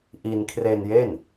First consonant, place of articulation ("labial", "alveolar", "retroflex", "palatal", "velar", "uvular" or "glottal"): glottal